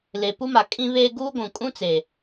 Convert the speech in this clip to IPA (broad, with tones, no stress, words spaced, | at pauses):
le˨ pu˦ma˨ kʼĩ˦βeː˦ ɡuː˦ɡʷũ˨kʼũ˦t͡se˨